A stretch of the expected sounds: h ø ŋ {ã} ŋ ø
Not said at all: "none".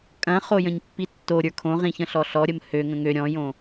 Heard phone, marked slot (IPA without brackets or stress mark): ə̃